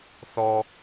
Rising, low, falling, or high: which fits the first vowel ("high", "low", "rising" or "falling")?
high